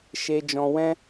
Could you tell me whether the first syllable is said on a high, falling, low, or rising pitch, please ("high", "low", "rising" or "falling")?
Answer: high